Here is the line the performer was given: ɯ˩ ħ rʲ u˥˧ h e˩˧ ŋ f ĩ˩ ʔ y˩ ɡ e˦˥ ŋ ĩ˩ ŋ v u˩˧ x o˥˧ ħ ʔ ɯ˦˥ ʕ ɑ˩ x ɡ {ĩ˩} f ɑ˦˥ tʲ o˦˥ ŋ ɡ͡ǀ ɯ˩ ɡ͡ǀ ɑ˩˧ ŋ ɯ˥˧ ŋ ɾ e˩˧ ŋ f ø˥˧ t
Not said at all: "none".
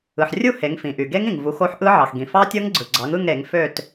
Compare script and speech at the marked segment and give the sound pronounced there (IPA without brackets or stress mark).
ĩ˩